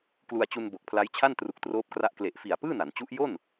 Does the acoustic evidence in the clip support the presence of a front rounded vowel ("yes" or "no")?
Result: no